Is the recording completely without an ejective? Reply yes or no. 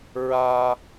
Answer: yes